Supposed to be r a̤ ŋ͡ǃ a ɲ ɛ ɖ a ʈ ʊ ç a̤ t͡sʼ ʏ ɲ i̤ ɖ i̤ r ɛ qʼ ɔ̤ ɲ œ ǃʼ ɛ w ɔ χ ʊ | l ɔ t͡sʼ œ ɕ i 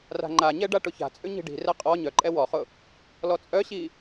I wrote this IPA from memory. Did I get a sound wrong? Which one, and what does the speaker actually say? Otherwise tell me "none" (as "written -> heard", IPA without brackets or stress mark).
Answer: ɔ̤ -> ɔ